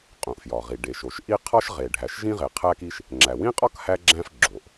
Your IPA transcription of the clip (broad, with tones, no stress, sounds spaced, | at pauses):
qʼ ũ˩ ʔ f j ɒ˩ ʁ i˩ ɖ e˩ ʃ o˩ ʃ ʔ i˥ qʰ ɒ˥ ʃ ʁ e˩ ɖʱ æ˩ ʃ ʒ ĩ˥ ʁ e˩ qʰ æ˥ k i˥ ʃ | ŋ͡ǁ æ˩ w ĩ˥ qʼ ɒ˥ k h æ˥ ɡ͡ǁ æ̃˥ f ɡ͡ǁ o˩ ʔ